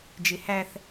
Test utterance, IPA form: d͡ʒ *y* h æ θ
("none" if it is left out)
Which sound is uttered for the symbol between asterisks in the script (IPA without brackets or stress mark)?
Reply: e